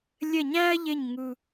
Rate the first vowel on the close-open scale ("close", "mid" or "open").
mid